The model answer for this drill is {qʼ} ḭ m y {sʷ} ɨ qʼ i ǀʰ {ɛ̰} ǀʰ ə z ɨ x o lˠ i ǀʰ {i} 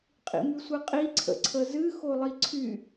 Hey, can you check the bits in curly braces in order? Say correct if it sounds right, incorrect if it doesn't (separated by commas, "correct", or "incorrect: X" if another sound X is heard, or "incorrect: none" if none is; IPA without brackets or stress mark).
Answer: correct, correct, incorrect: ə̰, incorrect: y